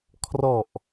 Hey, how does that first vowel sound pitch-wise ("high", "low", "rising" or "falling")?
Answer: low